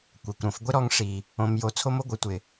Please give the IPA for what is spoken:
kʷ ɛ˨ kʷ ɾ õ˨ f ɡʷ ɪ˦ ɾ ɔ˧ ŋ ʂ i˨ | õ˧ m j o˧ t͡sʰ o˦ m o˦ ɡʷ ə˨˦ tʷ ɪ˨

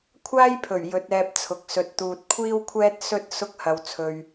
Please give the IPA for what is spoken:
kʷʰ aː˥ j pʰ ɵ˨˩ ɥ j ɵ˨˥ t̚ ɛː˧ p̚ t͡sʰ ʊ˨ k̚ s ɵ˨ t̚ t̪ uː˨ t̚ kʷʰ iː˥ w kʷʰ ɛː˥ t̚ s ɵ˥ t̚ s ʊ˥ k̚ h ɐ˧ w t͡sʰ ɵ˧ ɥ

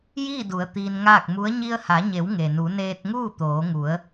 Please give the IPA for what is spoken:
j iː˥˨ d u˩˧ ə̯ t̪ iː˧ n ŋ aː˥˨ k̚ m u˧˥ ə̯ ɲ i˧ ə̯ h a˩˧ ɲ e˩˧ w ŋ e˩ n u˩˧ n eː˧ t̚ ŋ uː˥˨ t̪ oː˩˧ ŋ u˩˧ ə̯

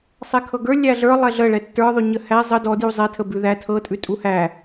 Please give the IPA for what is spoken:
sˤ ɛ kʰ ɤ ɡ ə˞ lʲ æ ɮ ə˞ lˠ ɛ ɮ ə ɭ ɛ tː ə˞ ðˤ ʉ ɲ ə h æ zˤ ə d ɔ d j u zˤ ɛ tʰ ə b ʉ ð æ tʰ ɤ tʼ ʉ tʼ u h æ

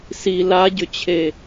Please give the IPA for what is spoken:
s i l a ɟ ʏ t͡ɕʰ e

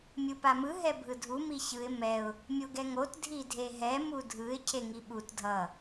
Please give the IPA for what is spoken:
mʲ ɯ p a m ɯ ɦ ɛ bʱ ɯ dʱ u m i ç ɯ ɪ̯ m ɛ ʊ̯ | mʲ o ɡ ɛ ŋ o t dʱ i dʱ e ɦ ɛ m u dʱ ɯ ɪ̯ cʰ e ŋ i ɓ u t dʱ ʌ

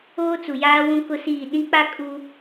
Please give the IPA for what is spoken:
oː˦ t͡s u˨ j aː˦ w ũ˦ k ʊ˦ s iː˦˨ ɗ ĩ˦ k͡p a˦ kʼ u˦

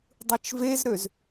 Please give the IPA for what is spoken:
dˤ ɯ t͡ʃ v e z ɾ ø z

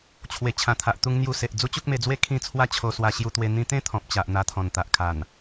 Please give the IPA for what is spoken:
t͡ɕʰ w e˨˩ t͡ɕʰ ã˨˩ t̪ʰ a˨ ʔ t̪ u˧ ŋ n̪ j u˧ s e˨ ʔ d͡z u˦ t͡ɕ u˦ k̚ m e˧ d͡z w e˥˧ kʰ ĩ˥˧ t͡sʰ w a˥˧ t͡ɕʰ o˧ s w a˧ ɕ j u˧ t̪ w e˧ n̪ ĩ˧ t̪ ẽ˦ t̪ʰ ɔ̃˨ p̚ t͡ɕ a˨ ʔ n̪ a˧ t̪ʰ ɔ̃˨˩ n t̪ a˨ ʔ kʰ a˨˩ n

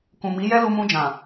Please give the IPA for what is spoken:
k ũ˨ m i˨˦ j ɛ˦ l u˧ m ũ˧ d͡ʒ ã˨

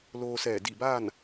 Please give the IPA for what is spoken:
l oː˧ s ɛː˧˩ d i˧˩ b aː˥˨ n

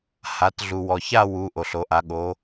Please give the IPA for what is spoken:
h a˩˧ t ɮ u˩ w ɔ˩ ç a˥˧ w u˩˧ ʔ o˩ ɬ o˩˧ ʔ a˩˧ ɠ o˩˧

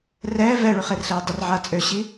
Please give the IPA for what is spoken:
r ɛː v ɛ ɭ y χ e r ɬ eː dˤ ə r ʕ a t͡sʼ ø ɕ i

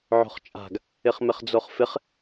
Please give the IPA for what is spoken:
ʕ o̤ χ t͡ʃʼ a̤ ɡ | ɪ χ m ɪ χ d͡z o χ f ɪ χ

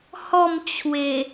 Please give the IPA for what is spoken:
h ɔ˥˧ m t͡ɕʰ w e˨˩

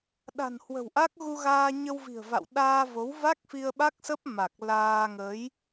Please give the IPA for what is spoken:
ɗ a̤˨˩ n h w ə̤˨˩ w ʔ a˦˥ k̚ ɣ u˧ ɣ aː˧ ɲ ə˧ w v i̤˨˩ ə̯ v a̰˧˨ w ɗ aː˧ v o˨˦ w v a˦˥ k̚ f i˧ ə̯ ɓ a˦˥ k̚ s ə˦˥ p̚ m a˨˩ k̚ l aː˧ ŋ ə˨˦ j

